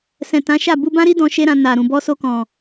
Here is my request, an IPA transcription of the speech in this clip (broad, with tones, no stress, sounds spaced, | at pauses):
s ɛ̃˨ t ã˨˦ ʃ a˦˨ b u˧ b ã˦ ɾ i˦ d ɔ̃˧ ʃ e˦ ɾ ã˧ n a˨ ɾ ũ˨ b ɔ˧ s o˧ k ɔ̃˨